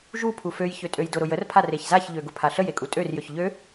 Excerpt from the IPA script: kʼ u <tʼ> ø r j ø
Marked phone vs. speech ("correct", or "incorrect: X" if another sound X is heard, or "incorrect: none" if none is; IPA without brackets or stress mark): correct